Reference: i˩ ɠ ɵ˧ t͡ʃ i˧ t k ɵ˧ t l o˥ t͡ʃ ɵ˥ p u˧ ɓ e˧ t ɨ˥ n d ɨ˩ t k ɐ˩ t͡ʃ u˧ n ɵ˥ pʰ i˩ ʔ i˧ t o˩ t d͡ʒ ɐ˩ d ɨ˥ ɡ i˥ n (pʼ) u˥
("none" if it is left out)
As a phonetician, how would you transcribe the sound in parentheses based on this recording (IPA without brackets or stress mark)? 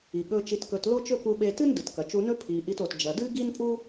pʼ